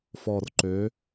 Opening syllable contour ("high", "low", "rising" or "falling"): low